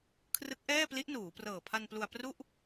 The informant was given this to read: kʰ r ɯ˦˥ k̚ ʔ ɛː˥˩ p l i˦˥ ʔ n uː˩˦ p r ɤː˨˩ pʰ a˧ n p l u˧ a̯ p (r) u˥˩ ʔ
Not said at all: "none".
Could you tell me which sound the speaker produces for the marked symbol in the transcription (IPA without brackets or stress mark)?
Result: r